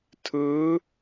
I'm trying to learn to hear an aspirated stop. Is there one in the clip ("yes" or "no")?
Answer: yes